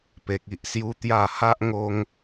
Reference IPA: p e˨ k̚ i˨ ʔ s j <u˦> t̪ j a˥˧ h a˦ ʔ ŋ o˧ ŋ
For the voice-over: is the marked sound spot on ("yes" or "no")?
yes